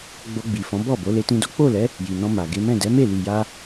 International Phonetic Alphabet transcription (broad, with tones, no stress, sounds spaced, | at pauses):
ɡ͡b o˧ ɡ͡b i˨ f ɔ̃˨˦ b ɔ˦˨ b o˨˦ l e˧ t ĩ˧ d o˦ k͡p o˦˨ l ɛ˨˦ | j i˨ n ɔ̃˧ m a˨ ɡ e˨˦ m ɛ̃˦˨ d ɛ˨˦ m e˦˨ l i˨ j a˧